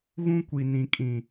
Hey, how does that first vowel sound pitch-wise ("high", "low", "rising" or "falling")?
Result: high